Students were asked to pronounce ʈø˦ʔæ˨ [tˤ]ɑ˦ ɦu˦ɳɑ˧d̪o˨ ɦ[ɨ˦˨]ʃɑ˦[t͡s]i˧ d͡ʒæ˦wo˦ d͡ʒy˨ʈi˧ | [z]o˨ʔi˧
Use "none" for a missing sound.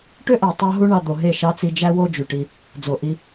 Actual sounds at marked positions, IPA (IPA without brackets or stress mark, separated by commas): tˤ, e˦˨, t͡s, d͡z